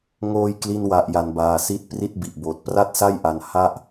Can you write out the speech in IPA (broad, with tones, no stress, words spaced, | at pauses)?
ŋoː˧jkli˧nwa˨˩ʔ ja˩˦nbaː˨˩si˦˥t̚pri˥˩t̚ bi˨˩ʔboː˨˩t̚ pra˥˩t̚sa˥˩jʔa˧n ha˥˩ʔ